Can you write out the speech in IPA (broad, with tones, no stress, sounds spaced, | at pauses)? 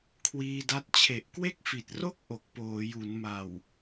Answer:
kʰ w iː˧ d a˦˥ t̚ t͡ɕʰ e˨˩ ʔ k w e˥˩ k̚ f i˨˩ t̚ r o˥˩ k̚ ʔ o˨˩ k̚ p oː˩˦ j u˩˦ n m a˨˩ w